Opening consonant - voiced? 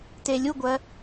no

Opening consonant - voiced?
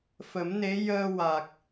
no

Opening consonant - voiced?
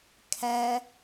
no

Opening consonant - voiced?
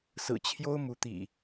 no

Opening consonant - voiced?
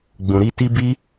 yes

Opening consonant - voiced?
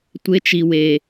no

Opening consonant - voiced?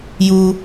yes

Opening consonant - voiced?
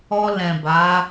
yes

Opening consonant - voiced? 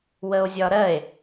yes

